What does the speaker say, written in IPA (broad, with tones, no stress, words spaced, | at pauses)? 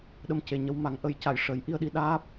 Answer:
ɗə˧m ce˨˩ɲə˧w ma˨˩˦ŋʔə˨˩˦jca˨˩˨j ʂə˨˩˦jʔi˧ə̯ɗi˧ɗaː˦˥p̚